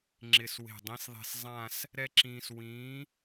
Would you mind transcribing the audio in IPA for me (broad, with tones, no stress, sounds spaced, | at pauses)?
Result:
ŋ͡ǁ ɪ˨˩ s w e̤˨˩ dˤ ĩ˨˥ s ðˤ e̤˧ s zˤ ã˥˧ s | ɾ ɛ˥ ǁ ĩː˧ s w ĩː˨˥